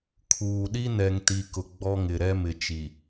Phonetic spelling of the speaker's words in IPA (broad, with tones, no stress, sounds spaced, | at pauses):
kʰ uː˨ ɗ i˦ n ɛ˨ ŋ t i˨ k ʊ˨ ɡ͡b ɔ˦ ŋ ɪ˨ ɾ ɛ˦ m ɪ˨ t͡ʃ i˨